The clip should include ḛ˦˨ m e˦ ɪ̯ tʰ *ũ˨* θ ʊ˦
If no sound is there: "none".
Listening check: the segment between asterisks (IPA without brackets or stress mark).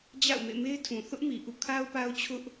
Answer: ũ˨